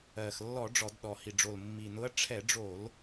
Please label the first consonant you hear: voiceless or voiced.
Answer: voiceless